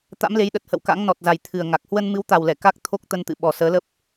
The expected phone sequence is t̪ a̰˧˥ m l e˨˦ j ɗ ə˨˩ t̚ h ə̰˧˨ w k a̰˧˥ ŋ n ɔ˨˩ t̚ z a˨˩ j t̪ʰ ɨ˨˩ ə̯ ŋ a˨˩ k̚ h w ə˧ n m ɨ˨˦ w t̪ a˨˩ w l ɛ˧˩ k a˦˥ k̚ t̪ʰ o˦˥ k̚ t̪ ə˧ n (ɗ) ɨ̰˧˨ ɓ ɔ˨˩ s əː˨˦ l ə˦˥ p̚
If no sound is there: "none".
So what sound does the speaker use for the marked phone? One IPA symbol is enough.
t̪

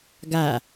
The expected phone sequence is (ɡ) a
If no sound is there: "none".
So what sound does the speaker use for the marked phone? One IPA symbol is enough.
ɡ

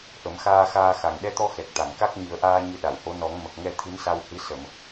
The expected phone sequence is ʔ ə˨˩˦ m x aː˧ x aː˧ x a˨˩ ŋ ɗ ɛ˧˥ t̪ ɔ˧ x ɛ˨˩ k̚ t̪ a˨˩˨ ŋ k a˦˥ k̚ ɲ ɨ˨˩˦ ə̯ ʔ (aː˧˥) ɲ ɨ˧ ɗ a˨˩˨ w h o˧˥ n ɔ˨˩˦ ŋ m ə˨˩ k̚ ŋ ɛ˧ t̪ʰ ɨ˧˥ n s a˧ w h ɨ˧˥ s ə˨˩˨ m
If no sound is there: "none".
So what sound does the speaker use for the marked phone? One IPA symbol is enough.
aː˧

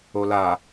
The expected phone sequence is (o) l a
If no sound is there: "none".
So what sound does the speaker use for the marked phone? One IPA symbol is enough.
o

